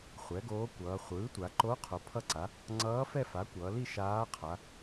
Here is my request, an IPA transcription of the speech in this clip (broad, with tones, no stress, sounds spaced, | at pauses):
χʷ ɛ˩˥ ɡ oː˧˥ kʷ ʌː˩˧ χʷ ɯː˩˥ tʷ a˩˧ ǃ o˧˥ qʰ o˩˧ pʰ ʌ˥˧ ǀ a˩˥ | ŋ͡ǀ ʌː˧˥ f ɛ˥˧ f a˩˥ kʷ ʌː˩˧ l i˥˧ ʃ aː˧˥ qʰ a˩˧